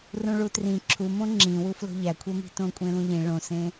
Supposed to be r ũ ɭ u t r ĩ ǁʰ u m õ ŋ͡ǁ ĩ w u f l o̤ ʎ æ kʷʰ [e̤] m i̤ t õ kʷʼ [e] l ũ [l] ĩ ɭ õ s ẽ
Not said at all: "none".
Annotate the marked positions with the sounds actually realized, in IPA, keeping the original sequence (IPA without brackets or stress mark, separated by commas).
e, ẽ, ʎ